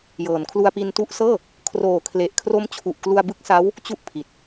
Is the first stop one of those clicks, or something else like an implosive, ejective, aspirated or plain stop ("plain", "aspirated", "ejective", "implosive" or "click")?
aspirated